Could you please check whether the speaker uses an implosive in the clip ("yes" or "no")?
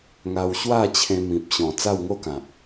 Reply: no